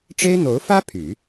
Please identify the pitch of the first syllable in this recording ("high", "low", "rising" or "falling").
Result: high